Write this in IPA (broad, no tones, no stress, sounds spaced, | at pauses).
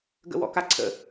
ɡ ə̰ w ɔ̰ k a ǀʰ ə̰